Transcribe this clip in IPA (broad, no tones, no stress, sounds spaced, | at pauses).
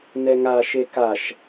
n ɛ ŋ a ʃ e k a ʃ